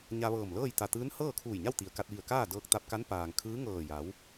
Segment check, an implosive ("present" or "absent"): absent